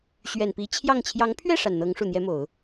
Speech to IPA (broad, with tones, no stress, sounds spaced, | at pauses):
ɕ ɥ ɛ˨˩ n p i˧˥ t͡ɕʰ j ɑ˥˩ ŋ t͡ɕʰ j ɑ˧˥ ŋ pʰ ɥ ɛ˥˩ ʂ a˨˩ n n̪ ɤ˧˥ ŋ ʂ u˨˩ n̪ j ɛ˥ m o˨˩˦ ʊ̯